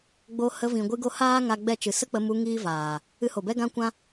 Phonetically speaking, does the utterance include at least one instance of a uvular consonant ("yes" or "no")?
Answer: no